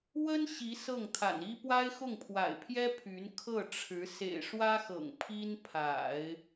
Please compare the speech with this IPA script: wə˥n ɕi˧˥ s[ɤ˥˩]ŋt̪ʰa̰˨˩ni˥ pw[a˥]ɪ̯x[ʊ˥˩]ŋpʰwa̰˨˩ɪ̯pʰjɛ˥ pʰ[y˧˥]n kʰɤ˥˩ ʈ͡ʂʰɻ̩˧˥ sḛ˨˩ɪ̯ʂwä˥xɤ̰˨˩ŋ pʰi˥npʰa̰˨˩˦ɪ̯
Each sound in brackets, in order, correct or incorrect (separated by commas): correct, correct, correct, correct